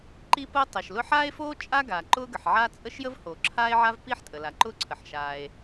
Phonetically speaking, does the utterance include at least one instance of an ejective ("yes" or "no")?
yes